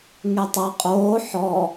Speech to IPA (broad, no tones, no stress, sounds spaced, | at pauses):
ŋ e tˤ ʌ qʼ oː ħ ɔ